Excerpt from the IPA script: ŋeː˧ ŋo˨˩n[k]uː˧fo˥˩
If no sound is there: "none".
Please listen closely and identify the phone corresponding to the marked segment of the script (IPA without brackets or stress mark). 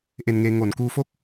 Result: k